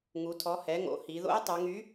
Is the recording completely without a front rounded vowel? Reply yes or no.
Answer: no